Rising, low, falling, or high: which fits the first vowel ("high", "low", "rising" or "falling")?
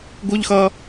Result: high